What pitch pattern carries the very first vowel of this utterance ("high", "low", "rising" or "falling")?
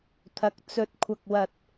low